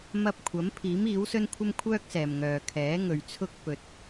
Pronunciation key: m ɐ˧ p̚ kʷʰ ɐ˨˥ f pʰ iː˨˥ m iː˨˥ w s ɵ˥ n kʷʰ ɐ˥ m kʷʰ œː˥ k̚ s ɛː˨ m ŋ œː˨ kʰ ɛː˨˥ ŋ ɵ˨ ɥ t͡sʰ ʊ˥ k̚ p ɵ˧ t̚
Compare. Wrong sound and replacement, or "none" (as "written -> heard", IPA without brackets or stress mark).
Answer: f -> m